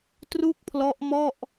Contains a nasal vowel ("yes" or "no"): no